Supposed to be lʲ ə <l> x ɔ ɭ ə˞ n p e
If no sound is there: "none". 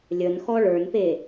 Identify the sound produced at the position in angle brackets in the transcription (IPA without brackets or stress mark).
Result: n